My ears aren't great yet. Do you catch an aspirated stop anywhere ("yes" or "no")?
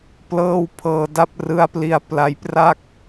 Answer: yes